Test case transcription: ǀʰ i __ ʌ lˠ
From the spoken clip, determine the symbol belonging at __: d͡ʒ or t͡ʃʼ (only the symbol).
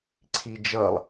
d͡ʒ